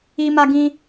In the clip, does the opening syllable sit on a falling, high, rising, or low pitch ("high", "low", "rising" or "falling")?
high